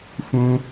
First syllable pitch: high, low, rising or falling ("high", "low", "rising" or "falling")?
high